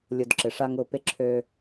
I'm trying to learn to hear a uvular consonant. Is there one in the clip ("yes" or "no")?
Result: no